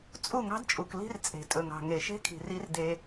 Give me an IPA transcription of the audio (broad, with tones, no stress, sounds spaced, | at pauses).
t͡sʼ u˦˨ ŋ ɑ̤˦ d t͡ʃʼ u˨ k l i̤˦ r t͡sʼ e̤˨ tʼ ɵ˨ ŋ ɑ̤˨ ŋ e˨ ʃ e̤˦ kʰ i̤˨ r i˦ r d e˦